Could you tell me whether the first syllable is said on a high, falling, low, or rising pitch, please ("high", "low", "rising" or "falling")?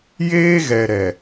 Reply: high